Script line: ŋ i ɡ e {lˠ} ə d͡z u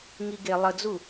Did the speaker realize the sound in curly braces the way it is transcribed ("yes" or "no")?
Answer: yes